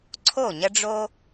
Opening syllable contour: falling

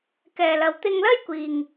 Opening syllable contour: low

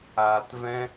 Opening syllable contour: low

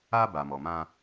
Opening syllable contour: high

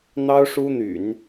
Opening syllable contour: high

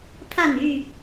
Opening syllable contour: falling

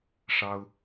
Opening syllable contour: high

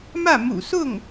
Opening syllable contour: falling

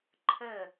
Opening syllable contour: falling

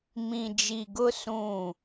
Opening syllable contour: low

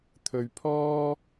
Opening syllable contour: low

